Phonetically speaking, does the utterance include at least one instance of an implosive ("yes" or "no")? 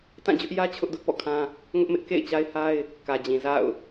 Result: no